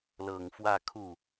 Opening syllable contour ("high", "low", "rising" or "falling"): low